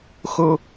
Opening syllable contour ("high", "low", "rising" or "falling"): high